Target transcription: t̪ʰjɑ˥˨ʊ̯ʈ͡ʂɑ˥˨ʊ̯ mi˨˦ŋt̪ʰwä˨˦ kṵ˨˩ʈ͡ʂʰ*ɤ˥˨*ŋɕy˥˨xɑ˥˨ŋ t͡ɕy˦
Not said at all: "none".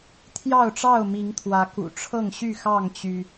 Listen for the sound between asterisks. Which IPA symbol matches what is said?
ɤ˥˨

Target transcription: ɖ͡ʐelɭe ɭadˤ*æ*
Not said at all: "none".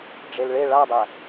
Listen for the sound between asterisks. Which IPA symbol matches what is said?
æ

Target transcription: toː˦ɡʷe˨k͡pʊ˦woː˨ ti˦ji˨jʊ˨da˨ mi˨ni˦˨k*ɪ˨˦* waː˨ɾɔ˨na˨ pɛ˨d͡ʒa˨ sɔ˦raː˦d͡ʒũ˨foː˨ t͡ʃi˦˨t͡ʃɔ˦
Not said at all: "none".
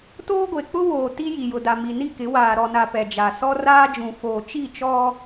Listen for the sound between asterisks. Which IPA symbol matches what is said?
ɪ˨˦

